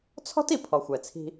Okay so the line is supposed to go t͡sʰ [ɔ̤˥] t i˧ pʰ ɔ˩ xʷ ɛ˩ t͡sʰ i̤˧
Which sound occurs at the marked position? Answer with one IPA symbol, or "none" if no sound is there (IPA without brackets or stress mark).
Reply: ɔ̤˥